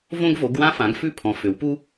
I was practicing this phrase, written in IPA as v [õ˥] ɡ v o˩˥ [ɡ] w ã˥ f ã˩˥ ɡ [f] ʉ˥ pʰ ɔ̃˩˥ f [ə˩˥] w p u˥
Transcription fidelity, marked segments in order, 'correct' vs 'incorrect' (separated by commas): correct, correct, correct, incorrect